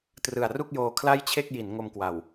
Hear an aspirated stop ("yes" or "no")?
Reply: yes